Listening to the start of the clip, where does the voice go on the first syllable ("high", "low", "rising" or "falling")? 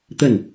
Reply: falling